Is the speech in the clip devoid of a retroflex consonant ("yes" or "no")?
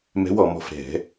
yes